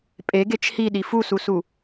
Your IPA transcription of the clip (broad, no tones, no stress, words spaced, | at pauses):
pʼeɡet͡ʃ hiɗi fususu